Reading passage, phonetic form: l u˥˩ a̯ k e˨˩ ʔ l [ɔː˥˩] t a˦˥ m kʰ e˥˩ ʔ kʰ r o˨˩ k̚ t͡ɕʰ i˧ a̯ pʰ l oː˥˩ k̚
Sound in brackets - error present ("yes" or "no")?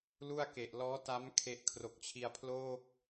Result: yes